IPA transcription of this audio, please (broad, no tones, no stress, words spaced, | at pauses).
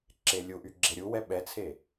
ǁelʲuʔy ɡ͡ǁeɾʲu wɛɓɛt͡sʰe